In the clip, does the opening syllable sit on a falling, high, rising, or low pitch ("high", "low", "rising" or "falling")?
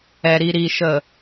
low